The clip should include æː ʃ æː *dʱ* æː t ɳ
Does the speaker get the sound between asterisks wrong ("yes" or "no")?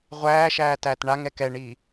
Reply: yes